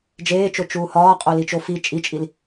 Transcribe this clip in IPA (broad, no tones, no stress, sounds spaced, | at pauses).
d͡ʒ eː t͡ʃ o t͡ʃ uː h ɒː qʼ o l i t͡ʃ o f i t͡ʃʼ i t͡ʃʼ i l